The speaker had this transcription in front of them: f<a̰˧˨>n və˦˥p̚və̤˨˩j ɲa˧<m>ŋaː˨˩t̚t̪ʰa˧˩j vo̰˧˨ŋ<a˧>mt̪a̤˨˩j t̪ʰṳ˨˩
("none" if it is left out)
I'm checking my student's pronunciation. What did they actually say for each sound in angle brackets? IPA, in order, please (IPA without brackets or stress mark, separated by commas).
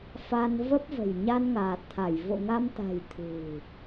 a˧, n, a˧